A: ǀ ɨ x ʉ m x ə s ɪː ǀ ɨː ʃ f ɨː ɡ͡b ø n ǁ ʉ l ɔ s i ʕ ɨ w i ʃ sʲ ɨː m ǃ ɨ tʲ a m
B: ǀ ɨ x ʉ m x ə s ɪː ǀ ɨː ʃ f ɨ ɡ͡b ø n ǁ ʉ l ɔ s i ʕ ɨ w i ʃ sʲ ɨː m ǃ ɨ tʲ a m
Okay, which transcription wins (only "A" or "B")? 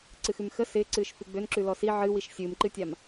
B